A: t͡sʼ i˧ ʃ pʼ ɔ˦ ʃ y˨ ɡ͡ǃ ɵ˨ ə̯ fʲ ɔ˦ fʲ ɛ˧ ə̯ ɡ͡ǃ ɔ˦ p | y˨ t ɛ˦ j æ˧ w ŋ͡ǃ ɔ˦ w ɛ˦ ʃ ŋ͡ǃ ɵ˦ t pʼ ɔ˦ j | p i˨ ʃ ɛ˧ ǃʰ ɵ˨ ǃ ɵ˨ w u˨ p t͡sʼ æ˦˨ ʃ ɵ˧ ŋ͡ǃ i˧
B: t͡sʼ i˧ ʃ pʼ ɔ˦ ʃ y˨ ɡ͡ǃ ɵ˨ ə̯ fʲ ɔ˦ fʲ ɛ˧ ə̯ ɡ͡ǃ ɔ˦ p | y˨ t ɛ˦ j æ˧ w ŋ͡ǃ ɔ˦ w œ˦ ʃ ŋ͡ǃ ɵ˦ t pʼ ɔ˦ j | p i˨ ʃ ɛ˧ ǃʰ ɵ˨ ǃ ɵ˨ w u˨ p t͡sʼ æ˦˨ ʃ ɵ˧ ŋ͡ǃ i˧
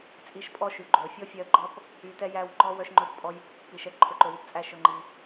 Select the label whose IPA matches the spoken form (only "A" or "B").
B